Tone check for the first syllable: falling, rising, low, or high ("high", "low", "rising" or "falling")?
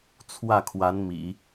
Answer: falling